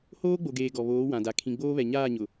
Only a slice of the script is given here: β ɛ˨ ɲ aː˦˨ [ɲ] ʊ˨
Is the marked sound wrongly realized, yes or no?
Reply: no